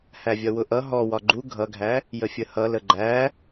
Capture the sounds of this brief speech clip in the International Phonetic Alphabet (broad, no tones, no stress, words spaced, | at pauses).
hævʲʌwʊʔʌ ɦɔ wɒɡ͡ǃu ɡʱʌɡʱæ | jəfʲəhʌ ləɡ͡ǃæ